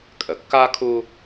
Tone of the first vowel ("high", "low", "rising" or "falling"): low